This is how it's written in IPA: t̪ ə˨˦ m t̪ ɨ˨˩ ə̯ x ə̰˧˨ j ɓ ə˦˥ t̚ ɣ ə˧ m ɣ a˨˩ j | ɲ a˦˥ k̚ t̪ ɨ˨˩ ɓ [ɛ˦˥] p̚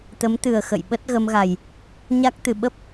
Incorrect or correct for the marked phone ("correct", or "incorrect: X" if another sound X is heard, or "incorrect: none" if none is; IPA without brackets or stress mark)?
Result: incorrect: ə˦˥